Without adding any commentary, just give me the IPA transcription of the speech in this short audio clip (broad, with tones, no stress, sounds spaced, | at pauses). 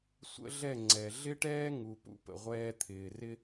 sʷ ə̰˦ ɮ ɛ˦˨ ŋ͡ǀ ɛ˨ ɮ ɪ˦ ʈ ɛː˦ ŋ u˨ p ṵ˧ p ə̰˨ ʁʷ ɛː˧ t̪ʰ ɪː˨ r ɪ˦